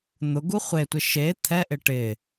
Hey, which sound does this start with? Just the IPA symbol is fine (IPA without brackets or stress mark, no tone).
n̪